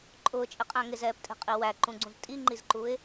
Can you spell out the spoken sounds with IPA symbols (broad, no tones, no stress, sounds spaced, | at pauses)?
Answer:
ǃʼ ʊː t͡ʃʼ ɪ qʼ æ̃ ŋ ɪ z ɛː p tʼ ɛ̤ qʼ i w æ ǃ ũ ɡ͡ǀ ũ z tʼ i ŋ͡ǃ i z ǃ u ɪ̯